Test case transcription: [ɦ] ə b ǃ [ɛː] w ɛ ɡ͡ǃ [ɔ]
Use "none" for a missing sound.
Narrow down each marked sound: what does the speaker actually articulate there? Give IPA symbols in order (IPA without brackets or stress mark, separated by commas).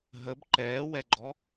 ɦ, ɛː, ɔ